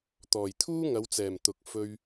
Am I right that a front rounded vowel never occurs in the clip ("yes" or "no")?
yes